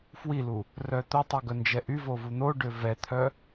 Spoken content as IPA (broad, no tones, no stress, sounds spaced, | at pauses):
f w i l u | r œ t̪ ʊ tˤ y ɡ œ n d͡ʒ ɛ ʔ y v o v u n̪ o ɖ ø v ɛ t̪ʰ œ